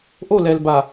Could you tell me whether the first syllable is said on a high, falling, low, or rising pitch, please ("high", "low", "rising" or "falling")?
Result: falling